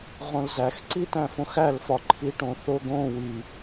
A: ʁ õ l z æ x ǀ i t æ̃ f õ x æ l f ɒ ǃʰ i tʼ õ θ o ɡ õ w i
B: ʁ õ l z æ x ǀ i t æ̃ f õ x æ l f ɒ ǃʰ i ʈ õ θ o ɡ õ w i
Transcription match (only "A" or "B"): B